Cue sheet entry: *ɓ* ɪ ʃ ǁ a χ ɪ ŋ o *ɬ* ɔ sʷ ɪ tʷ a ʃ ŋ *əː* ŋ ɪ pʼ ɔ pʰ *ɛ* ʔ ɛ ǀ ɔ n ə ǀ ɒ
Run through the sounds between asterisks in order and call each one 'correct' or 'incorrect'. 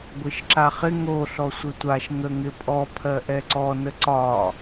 incorrect, correct, incorrect, incorrect

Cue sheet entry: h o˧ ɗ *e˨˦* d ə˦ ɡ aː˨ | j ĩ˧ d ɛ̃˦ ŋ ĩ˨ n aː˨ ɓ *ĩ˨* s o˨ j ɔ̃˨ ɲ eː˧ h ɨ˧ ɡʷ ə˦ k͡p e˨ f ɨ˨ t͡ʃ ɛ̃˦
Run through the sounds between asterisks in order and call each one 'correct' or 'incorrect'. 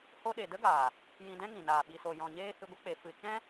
incorrect, incorrect

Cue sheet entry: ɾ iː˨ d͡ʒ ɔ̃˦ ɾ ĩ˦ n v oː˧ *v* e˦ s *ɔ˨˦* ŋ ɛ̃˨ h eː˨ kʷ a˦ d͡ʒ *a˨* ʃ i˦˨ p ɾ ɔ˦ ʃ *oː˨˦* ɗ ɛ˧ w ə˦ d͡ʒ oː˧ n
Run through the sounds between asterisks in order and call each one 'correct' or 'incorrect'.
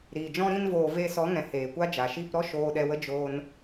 correct, correct, correct, incorrect

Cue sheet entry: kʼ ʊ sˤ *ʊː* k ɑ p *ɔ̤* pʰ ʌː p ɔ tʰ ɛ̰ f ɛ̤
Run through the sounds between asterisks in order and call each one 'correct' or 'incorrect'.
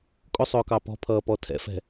correct, correct

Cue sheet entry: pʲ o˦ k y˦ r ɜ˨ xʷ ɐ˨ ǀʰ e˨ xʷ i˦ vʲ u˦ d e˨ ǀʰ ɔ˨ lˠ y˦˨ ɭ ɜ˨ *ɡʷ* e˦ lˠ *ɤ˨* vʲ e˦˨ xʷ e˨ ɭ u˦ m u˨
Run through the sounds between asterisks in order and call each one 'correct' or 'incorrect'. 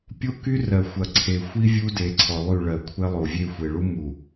incorrect, incorrect

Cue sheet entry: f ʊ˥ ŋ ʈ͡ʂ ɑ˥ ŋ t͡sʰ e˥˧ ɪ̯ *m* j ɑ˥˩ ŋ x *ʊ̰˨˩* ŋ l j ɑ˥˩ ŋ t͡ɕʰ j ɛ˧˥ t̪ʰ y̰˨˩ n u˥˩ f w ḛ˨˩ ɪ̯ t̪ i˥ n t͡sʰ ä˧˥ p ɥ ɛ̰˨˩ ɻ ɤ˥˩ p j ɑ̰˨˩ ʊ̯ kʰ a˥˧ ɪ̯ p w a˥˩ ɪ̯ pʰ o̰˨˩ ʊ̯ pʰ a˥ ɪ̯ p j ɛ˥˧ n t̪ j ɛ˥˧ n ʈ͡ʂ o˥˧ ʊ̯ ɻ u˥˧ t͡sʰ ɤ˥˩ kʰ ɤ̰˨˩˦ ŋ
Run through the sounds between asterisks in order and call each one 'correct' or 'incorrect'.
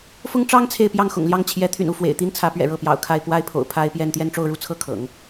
incorrect, correct

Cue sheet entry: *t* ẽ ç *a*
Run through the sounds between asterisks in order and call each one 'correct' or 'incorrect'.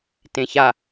correct, correct

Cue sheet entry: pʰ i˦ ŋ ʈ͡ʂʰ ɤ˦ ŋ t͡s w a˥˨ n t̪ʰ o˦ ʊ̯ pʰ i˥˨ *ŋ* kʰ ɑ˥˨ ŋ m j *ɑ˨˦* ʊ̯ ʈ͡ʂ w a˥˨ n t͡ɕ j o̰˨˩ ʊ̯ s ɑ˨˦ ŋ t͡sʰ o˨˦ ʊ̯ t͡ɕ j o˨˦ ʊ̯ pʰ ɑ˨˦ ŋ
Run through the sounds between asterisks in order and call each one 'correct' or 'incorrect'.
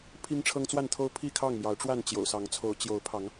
incorrect, correct

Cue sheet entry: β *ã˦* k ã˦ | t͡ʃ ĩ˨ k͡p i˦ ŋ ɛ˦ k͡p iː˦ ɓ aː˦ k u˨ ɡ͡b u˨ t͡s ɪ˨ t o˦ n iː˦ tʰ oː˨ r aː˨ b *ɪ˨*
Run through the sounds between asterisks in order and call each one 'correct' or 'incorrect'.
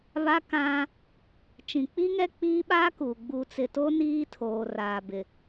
incorrect, correct

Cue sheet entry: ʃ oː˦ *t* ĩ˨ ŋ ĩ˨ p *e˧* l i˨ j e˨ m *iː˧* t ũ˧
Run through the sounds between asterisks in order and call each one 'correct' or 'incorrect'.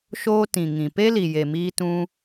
correct, incorrect, correct

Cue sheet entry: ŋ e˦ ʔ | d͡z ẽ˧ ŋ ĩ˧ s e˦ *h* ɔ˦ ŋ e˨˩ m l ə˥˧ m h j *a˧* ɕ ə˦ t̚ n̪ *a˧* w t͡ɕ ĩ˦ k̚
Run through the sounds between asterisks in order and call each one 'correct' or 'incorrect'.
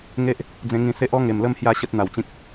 incorrect, incorrect, incorrect

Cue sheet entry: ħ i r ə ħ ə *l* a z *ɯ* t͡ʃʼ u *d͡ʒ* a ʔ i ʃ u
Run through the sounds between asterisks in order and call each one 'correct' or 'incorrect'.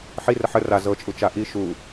incorrect, incorrect, incorrect

